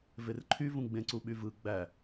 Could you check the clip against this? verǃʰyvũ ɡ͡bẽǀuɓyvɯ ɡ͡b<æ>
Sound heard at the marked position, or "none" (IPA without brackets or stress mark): æ